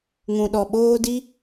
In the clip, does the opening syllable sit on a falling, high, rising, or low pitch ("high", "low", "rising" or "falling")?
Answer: low